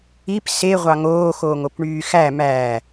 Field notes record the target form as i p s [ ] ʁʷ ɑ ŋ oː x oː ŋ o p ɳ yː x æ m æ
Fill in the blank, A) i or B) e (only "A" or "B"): B